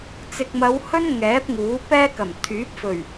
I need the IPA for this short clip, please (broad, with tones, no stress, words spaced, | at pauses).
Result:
t͡sɪ˨k̚mɐ˨˧w hɵ˥n ŋɛː˨˥p̚ŋuː˨˥pɛː˥kɐ˨˩m t̪ʰyː˨˥p̚fɵ˨˩ɥ